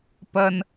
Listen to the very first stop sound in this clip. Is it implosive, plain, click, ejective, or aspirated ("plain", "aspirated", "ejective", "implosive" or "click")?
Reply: plain